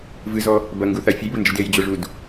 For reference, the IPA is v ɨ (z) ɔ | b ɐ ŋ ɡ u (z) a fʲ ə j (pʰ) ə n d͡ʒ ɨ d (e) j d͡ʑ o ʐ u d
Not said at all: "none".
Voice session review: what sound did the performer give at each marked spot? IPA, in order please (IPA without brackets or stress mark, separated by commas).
z, θ, b, e